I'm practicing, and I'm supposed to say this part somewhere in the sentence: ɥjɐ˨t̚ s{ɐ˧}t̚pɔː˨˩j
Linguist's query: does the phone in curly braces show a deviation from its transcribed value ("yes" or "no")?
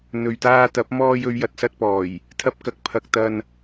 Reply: no